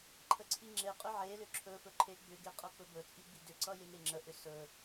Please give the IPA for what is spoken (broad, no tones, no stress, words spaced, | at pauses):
ǃʰəǀʰiŋ͡ǁeqʼʏ ʕelʏ ǁʰɵfɵ ǃʰeɡ͡bʏɡe qʼʌk͡pɵbɵt͡sʼi ɡ͡bidʏǀʌ jeŋeŋ͡ǁəʔʏ sɵ